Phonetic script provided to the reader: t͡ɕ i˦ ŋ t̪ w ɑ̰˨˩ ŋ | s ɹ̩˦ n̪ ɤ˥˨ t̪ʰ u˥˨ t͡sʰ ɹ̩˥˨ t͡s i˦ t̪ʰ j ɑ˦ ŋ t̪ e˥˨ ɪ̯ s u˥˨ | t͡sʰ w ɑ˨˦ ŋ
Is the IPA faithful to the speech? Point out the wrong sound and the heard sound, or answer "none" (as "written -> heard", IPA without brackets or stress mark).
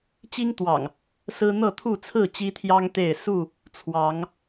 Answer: t͡s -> t͡ɕ